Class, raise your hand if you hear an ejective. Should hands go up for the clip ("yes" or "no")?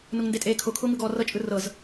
yes